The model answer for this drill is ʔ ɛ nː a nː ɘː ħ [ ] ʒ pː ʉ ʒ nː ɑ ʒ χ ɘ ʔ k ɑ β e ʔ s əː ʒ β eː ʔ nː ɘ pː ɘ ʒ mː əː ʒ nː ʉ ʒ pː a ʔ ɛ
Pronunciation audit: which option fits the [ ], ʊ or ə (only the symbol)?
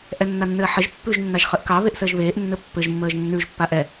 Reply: ə